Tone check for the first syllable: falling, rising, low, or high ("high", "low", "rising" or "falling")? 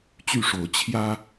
falling